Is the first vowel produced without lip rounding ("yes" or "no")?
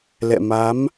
yes